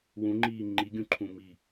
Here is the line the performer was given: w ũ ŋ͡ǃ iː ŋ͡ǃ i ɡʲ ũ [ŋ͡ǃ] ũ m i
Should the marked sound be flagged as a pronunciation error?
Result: yes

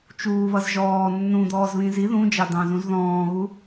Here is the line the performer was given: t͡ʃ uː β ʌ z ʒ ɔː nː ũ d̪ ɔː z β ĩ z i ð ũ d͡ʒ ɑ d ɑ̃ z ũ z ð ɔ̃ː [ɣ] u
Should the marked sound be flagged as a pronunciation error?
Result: no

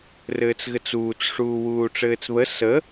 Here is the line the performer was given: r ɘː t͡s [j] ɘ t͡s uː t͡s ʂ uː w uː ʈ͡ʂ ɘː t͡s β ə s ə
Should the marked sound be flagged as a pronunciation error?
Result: yes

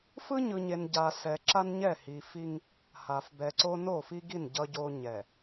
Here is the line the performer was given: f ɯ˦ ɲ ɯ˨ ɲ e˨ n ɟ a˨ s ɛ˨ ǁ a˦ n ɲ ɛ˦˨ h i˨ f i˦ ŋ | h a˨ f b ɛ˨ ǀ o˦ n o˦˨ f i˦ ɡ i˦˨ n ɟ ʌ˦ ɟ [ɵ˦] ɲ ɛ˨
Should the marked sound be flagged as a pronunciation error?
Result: yes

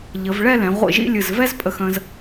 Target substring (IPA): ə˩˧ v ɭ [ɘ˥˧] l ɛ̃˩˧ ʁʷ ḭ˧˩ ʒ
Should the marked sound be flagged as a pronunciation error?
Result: yes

